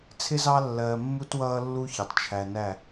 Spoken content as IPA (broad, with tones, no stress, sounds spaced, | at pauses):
t͡sʰ ɪ˦ z ɑ˦ lː ɜː˨ mː u˦ t w ʌː˦ lː u˦ ç ʌ˨ tˤ t͡ʃʰ æ˨ n æ˦˨